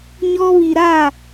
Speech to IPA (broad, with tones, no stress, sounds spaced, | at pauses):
ɲ ɔ˦ β i˨ ɾ a˦˨